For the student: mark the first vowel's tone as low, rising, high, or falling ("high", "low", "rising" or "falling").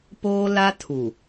high